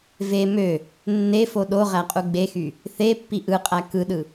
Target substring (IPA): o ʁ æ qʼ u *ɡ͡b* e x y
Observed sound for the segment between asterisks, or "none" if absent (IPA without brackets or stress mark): ɡ͡b